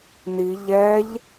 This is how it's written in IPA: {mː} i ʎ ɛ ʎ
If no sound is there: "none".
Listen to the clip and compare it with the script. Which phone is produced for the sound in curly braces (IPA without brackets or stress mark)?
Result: n